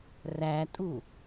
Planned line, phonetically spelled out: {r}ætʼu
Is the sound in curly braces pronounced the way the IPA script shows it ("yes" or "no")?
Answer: yes